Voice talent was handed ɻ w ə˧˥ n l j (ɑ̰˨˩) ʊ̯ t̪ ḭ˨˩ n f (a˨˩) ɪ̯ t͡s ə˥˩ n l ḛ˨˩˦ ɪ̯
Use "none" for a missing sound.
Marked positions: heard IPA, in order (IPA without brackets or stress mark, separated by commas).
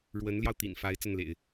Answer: ɑ˧, a˧˥